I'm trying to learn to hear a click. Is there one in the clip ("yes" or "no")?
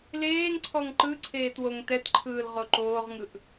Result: yes